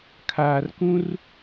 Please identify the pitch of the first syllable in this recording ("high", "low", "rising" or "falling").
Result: low